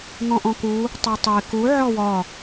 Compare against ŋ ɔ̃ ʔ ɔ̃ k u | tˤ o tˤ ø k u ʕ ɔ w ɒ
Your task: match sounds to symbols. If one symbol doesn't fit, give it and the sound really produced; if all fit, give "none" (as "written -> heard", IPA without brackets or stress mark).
ø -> e